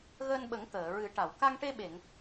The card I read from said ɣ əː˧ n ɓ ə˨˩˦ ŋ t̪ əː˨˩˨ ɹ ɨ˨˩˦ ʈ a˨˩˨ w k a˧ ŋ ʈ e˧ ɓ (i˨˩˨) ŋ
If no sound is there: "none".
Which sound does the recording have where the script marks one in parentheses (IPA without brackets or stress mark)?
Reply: e˨˩˨